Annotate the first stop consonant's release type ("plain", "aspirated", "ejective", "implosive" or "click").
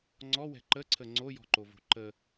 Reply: click